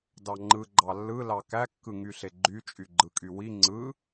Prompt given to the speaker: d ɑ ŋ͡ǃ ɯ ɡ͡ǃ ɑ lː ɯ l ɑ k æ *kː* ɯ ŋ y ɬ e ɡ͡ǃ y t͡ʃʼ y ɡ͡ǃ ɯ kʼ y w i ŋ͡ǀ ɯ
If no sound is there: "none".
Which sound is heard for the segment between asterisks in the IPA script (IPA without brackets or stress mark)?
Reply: kː